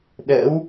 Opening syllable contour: rising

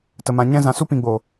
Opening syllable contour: low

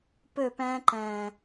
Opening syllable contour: falling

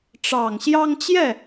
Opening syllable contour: low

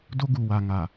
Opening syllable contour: high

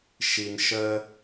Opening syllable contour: low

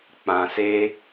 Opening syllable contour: low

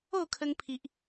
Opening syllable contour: falling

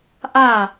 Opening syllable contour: falling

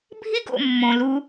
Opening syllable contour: high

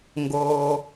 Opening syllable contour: low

